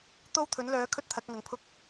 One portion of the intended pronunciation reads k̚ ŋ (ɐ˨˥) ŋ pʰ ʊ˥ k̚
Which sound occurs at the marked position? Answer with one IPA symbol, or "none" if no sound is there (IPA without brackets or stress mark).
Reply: ɐ˨˥